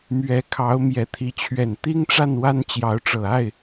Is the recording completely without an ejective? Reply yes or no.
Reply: yes